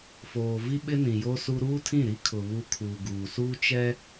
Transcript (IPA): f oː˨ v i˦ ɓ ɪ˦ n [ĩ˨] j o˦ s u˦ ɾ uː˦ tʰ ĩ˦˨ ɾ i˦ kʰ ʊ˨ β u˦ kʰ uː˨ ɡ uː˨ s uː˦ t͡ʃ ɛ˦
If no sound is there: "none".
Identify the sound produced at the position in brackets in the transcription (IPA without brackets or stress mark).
ĩ˨